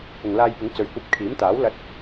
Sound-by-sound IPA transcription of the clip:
pʊ˨ŋlaː˧jpɪ˨˥ŋ t͡sɵ˨ɥkʷɐ˧p̚ kʰiː˨˥mt̪aː˨˥w lɐ˧t̚

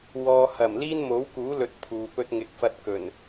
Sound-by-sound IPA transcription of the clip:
wɔː˨hɐ˨˩m liː˥nmo˨˥wkuː˨˥ lɵ˧t̚t̪ʰuː˨pɵ˥t̚ ŋɪ˨˥k̚fɐ˧t̚ kɵ˨˩n

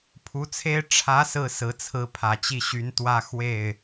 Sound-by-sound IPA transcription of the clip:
pʰu˧˥t͡sʰe˥ɪ̯ ʈ͡ʂʰä˧˥ sɹ̩˥˩sɹ̩˧˥t͡sʰɹ̩˧˥ pʰä˨˩t͡ɕi˥˩ɕy˧˥n t̪wä˥˧xwe˥˩ɪ̯

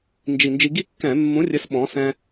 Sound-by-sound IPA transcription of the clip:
nd͡ʒi˨˩nd͡ʒi˧ɡi˥kːɛ̃˧˩˧ mːũ˨˥rʲɘ˨˥s ɓɔ̃˩˧sɛ̃˧

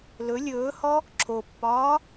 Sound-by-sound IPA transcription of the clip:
lɵ lʲɵːhɔ | ǁʰopːɒː

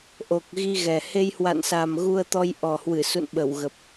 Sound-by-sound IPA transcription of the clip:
ʔo˨˩k̚ ɣi˧ɣɛ˨˩ he˧jhwa̰˧˨nsa˨˩m ɣu˧ə̯t̪ɔ˧jʔɔ˨˩hwɨ˧˩ sṵ˧˨nɓə˧˩wɣə˨˩p̚

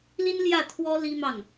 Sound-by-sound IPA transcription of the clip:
li˥nljä˥˩t̪ʰwɔ˥ li˥mɑ˥˩ŋ

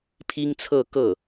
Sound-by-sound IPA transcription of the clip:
pʰi˥ŋt͡sʰɤ˥˧kɤ˥˩

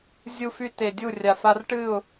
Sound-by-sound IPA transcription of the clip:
zʲu˦fy˦ te˨ dʲu˦˨rʲa˨fa˦r ʈɨ˦˨ʊ̯

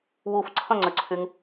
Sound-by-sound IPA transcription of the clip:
wuf ǀʰə̃ŋ͡ǀʏǀʰyŋ

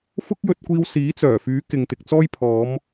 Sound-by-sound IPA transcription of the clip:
fʊ˥k̚jɵ˧t̚kʷiː˧w siː˨˥t͡sœː˨˩fyː˨˥ kɪ˨ŋt̪ɪ˨k̚t͡sɔː˥j pʰɔː˨˧m

